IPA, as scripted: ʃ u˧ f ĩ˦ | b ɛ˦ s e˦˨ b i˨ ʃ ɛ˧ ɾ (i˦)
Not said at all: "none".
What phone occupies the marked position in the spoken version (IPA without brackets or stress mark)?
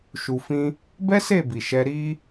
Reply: i˦